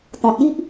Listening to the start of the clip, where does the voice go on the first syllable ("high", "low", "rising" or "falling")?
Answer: low